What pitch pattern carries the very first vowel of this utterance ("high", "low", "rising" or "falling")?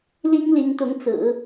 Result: high